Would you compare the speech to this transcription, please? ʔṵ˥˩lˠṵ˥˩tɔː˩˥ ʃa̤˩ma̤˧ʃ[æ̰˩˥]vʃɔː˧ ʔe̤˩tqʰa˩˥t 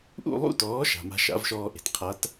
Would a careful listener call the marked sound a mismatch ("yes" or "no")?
yes